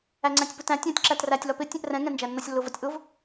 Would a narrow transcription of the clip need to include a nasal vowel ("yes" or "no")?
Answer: yes